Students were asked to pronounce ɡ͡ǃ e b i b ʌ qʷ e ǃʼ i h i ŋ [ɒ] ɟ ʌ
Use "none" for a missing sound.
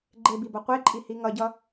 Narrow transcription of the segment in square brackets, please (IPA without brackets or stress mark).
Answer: ʌ